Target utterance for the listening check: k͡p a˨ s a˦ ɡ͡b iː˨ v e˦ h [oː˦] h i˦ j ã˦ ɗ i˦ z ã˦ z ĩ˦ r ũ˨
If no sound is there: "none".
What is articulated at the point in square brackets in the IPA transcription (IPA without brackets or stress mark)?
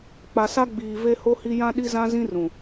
o˦